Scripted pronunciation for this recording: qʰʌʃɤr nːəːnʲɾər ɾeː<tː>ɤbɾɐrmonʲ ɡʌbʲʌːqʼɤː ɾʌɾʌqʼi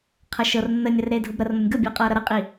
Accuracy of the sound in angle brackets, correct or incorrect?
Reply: incorrect